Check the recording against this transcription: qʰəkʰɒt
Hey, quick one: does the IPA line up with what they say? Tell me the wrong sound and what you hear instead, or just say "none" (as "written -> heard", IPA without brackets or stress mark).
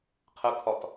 none